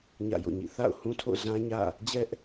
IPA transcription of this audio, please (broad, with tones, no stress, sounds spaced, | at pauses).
ɲ ä̰˦˨ j o̰˦˨ ɲ ḭ˦˨ θ a̰˦˨ ʊ̯ h ũ˦ tʰ o̰˦˨ z ã˦ ɲ ä̰˦˨ | d͡ʑ ɛ˦ ʔ